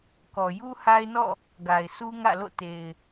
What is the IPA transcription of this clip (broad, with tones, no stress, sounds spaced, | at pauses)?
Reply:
k ɔ˨ j u˦ h a˦ ɪ̯ n ɔ̰˦˨ | ɡ a˨ ɪ̯ sʰ u˦ ŋ ä̰˦˨ l o̰˦˨ t e˨ ɪ̯